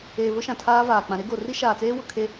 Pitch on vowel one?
low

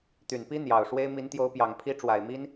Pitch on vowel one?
low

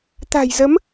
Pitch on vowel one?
low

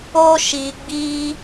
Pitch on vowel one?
high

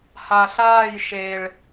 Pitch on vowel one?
low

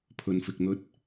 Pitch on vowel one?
low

